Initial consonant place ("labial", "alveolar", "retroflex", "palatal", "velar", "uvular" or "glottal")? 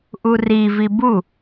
glottal